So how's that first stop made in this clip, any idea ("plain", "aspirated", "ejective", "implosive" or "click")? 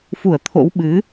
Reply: aspirated